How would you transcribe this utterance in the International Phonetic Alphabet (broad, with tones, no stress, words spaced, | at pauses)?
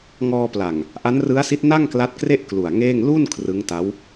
ŋɔː˧pla˨˩ŋ | ʔa˦˥nrɯ˦˥a̯si˦˥t̚ na˥˩ŋ kla˦˥t̚kre˥˩ʔ klu˨˩a̯ŋeː˥˩ŋ lu˥˩n kʰrɯ˦˥ŋta˦˥w